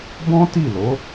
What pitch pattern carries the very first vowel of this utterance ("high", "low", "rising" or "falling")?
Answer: high